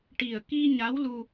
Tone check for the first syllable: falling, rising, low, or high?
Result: low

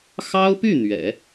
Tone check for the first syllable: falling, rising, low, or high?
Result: high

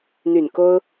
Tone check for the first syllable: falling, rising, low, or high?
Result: low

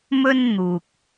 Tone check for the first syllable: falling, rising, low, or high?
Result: high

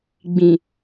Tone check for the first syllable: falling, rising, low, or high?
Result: low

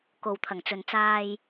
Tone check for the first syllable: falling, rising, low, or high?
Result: low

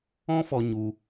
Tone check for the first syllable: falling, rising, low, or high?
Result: high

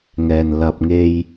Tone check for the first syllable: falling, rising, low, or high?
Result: low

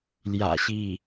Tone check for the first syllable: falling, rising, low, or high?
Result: low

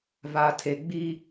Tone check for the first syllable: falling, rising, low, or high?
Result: low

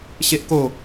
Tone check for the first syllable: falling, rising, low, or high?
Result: high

